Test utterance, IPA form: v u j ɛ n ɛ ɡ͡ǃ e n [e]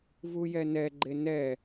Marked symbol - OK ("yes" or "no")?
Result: no